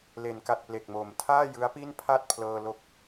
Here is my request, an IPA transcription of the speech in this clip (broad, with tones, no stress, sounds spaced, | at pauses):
l e˩˦ n k a˨˩ t̚ p l e˨˩ k̚ m o˩˦ m tʰ aː˥˩ j ɯ˦˥ a̯ p i˥˩ n pʰ a˥˩ t̚ pʰ l ɤː˧ l o˦˥ k̚